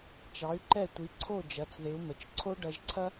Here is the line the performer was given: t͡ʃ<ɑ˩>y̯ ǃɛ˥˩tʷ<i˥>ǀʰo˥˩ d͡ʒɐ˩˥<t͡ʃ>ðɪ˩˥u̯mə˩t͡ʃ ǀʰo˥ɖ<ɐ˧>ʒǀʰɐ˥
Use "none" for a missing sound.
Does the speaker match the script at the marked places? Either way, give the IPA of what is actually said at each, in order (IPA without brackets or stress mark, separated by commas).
ɑ˩˥, i˩˥, t͡s, ɐ˧